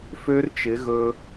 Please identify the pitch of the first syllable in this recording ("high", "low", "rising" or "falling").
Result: high